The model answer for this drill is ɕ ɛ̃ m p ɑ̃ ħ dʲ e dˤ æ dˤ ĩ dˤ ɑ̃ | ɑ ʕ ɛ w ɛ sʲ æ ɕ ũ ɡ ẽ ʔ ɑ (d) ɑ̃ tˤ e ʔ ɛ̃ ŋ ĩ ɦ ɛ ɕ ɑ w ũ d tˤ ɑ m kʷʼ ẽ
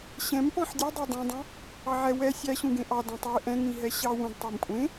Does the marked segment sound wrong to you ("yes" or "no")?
no